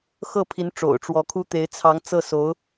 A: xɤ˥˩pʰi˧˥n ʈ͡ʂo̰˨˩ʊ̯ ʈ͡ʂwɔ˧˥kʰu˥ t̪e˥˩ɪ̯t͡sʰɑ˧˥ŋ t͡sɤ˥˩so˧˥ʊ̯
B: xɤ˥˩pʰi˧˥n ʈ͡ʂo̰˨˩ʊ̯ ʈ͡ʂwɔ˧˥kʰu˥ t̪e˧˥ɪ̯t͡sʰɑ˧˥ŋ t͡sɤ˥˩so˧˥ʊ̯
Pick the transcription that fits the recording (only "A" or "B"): B